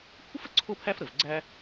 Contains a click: yes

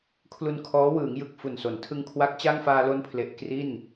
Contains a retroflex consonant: no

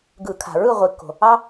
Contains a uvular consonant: yes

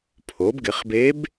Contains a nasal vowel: no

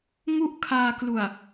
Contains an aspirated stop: yes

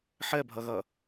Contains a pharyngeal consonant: yes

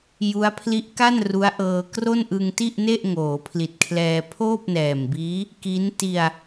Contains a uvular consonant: no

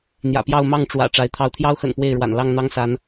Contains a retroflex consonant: yes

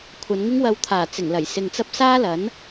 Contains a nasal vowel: no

